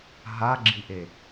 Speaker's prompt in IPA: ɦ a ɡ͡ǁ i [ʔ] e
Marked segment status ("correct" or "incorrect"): correct